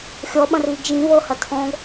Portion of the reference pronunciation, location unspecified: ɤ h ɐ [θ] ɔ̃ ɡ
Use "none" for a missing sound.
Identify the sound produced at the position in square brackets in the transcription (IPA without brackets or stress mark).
tʰ